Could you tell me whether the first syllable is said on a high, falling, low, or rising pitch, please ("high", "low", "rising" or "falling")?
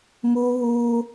high